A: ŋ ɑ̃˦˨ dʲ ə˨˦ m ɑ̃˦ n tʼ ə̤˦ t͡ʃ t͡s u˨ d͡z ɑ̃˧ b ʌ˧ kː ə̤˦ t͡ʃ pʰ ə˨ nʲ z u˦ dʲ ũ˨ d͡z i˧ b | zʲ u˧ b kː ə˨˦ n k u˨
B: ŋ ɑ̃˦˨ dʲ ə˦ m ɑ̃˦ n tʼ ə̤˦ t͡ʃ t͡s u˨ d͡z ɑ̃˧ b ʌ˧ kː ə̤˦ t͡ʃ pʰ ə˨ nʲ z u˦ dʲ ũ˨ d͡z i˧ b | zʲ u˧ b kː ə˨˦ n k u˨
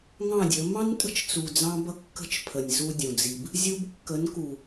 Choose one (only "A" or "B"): A